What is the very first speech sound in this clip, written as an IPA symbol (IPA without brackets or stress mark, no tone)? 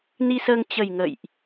n